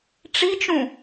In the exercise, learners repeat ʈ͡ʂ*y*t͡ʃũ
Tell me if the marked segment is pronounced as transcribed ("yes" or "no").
no